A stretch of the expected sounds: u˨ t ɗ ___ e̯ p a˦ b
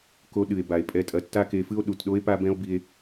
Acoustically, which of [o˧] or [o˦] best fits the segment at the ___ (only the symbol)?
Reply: o˦